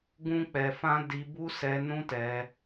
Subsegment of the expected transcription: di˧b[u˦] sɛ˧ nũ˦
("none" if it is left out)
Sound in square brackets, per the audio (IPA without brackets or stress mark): u˦